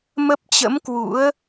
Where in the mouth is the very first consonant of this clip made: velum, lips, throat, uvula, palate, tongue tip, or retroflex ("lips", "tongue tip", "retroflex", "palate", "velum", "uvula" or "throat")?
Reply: lips